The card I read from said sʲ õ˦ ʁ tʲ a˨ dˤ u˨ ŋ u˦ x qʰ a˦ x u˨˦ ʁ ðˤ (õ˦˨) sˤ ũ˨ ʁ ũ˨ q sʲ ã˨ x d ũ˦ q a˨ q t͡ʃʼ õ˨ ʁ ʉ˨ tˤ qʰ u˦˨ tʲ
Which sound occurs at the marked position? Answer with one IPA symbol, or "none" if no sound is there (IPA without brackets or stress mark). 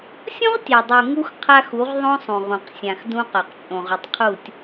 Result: õ˦